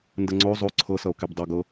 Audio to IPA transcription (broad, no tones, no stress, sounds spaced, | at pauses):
n d ə ŋ͡ǀ o zˤ o ǀʰ ɤ s ʌ o̯ k e b dˤ ʌ ɡ ɤ